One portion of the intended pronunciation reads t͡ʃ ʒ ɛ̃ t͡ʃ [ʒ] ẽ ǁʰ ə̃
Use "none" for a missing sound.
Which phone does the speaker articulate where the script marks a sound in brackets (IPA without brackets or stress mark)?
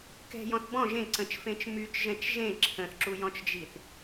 ʒ